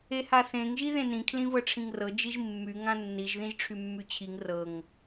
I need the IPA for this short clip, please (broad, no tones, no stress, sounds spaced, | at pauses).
e h a θ ẽ ŋ ʒ i ð ẽ n ĩ kʰ l ĩ v ɤ ʈ͡ʂʰ ĩ ŋ r ɤ d͡ʒ i ʒ mː y ŋ ã nː i ʒ ð ĩ ʒ ʈ͡ʂʰ y mː y t͡ɕʰ i ŋ r ɤ ŋ